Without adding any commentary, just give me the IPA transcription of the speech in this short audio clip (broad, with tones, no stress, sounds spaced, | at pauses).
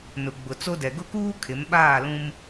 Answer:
n ʊ˨ ɡ͡b ʊ˨ t͡s o˦ d ɛ˨ ɡ ʊ˦ k uː˦ kʰ ɪ˨˦ m ɓ aː˦˨ l ũ˦ m